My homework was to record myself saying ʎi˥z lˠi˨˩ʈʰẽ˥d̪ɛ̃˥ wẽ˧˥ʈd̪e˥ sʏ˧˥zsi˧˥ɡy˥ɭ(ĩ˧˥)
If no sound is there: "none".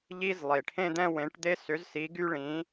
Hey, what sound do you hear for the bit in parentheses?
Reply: ĩ˧˥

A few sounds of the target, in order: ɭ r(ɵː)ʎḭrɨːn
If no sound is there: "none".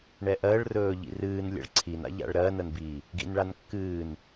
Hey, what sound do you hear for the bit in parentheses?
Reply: ɵː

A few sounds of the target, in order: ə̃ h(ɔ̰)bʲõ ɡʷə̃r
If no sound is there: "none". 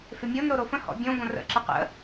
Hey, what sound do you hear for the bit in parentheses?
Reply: ɔ̰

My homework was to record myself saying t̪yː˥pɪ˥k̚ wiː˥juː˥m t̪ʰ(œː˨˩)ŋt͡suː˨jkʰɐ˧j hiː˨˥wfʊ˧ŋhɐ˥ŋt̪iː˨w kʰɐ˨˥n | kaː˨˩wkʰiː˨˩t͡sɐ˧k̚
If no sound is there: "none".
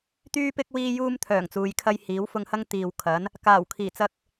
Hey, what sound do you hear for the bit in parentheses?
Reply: œː˨˩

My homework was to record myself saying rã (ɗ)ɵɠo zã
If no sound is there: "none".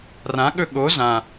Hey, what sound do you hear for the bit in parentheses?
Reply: ɠ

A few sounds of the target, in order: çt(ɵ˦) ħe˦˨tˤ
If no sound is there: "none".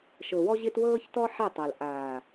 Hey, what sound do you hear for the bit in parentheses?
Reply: ɔ˦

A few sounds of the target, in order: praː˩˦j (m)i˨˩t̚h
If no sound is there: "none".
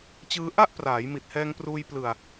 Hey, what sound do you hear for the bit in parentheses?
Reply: m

